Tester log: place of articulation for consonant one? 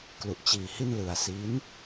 velar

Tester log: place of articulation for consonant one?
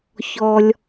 palatal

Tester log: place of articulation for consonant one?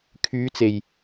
velar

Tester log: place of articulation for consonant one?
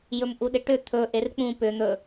palatal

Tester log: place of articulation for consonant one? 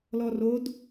alveolar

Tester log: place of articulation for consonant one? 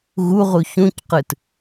velar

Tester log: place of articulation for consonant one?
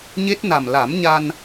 palatal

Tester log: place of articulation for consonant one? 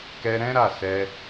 velar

